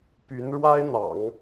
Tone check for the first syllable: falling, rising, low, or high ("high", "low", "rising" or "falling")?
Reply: rising